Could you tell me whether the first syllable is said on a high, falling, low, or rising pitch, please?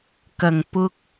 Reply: low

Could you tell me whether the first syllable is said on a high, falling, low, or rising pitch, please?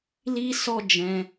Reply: high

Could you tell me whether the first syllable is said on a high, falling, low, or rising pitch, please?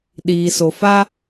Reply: low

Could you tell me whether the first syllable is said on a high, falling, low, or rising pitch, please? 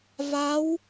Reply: rising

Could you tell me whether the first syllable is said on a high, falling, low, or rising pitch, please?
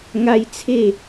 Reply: high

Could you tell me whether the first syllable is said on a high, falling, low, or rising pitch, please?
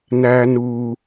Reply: high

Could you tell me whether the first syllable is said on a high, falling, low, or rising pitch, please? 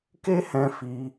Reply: high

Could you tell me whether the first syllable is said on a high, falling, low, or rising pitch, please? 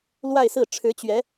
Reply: falling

